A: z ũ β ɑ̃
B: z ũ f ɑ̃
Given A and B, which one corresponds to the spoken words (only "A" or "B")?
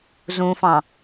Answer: B